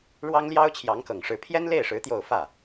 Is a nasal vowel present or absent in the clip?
absent